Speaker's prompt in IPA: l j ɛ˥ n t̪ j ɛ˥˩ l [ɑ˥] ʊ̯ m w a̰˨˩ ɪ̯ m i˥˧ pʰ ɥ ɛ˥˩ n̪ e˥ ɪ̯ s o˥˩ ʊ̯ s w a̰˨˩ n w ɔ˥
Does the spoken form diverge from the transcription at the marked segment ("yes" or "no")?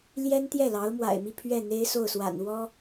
yes